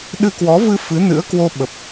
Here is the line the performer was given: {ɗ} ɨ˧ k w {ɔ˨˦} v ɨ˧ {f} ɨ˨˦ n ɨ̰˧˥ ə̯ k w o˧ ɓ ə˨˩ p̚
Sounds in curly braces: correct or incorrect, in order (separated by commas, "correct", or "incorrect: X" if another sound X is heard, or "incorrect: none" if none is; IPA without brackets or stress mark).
correct, correct, correct